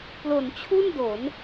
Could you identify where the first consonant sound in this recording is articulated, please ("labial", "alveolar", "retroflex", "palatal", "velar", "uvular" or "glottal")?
labial